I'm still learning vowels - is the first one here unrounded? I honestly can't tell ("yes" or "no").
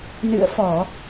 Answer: yes